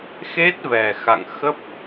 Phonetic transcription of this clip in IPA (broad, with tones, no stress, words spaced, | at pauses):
xe˦˥t̚vɛ˨˩ xa̰˧˨ŋ xə˦˥p̚